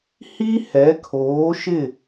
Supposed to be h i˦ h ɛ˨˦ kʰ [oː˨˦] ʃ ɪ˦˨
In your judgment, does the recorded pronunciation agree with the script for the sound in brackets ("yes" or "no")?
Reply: yes